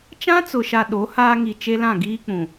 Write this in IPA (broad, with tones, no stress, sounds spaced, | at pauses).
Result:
t͡ʃ ã˦ t͡s ʊ˨ ʃ a˨ ɗ o˨˦ h aː˦ ŋ i˨ t͡ʃ e˦ l ã˦˨ ɡ iː˦ k͡p ũ˨